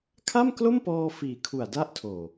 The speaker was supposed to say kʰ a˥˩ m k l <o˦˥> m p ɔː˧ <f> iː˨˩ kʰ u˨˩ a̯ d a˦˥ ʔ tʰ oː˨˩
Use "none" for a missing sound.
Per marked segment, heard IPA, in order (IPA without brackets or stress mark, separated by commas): o˥˩, f